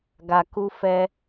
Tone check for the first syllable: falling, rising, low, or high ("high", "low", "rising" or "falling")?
low